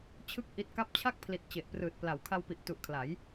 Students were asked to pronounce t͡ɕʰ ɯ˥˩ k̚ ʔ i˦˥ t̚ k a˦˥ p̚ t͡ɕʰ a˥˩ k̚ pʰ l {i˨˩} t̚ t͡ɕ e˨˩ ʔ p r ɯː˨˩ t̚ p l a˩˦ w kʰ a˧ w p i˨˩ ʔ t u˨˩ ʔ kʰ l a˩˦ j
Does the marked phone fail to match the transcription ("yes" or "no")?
no